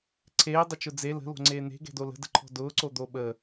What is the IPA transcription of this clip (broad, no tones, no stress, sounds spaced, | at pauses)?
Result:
ǀʰ eː dˤ ʊ t͡ʃ ʊ d͡z e l ə̤ l o̤ ŋ͡ǀ eː n̪ e̤ ɡ ɛ̤ d o l ə̤ d ə̤ ǃʰ ɔ̤ d ʊː ǀ o d̪ o ɓ əː